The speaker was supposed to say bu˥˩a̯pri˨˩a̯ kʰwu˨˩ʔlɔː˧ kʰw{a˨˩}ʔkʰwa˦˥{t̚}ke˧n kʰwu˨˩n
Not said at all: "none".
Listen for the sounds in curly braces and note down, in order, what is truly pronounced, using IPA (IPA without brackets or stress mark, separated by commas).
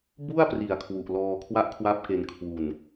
a˥˩, p̚